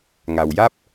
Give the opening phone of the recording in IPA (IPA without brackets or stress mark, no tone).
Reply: ŋ